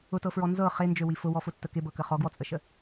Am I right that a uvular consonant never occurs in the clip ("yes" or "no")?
no